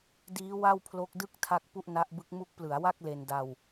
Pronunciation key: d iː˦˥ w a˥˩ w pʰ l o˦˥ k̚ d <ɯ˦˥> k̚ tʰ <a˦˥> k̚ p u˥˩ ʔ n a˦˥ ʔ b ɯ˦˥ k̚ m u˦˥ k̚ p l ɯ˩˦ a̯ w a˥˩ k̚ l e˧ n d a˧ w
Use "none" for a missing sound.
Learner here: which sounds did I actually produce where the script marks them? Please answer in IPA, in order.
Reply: ɯ˥˩, a˦˥

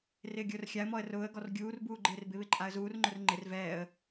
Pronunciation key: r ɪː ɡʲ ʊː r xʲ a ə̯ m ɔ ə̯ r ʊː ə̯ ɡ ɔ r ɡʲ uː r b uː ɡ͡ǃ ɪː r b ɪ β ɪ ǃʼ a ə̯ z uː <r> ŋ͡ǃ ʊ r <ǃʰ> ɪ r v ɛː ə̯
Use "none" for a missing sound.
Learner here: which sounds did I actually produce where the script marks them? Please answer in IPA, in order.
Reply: r, ŋ͡ǃ

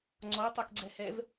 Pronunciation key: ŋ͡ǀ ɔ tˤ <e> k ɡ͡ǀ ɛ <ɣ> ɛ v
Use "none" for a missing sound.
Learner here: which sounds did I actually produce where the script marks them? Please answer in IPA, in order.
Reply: e, h

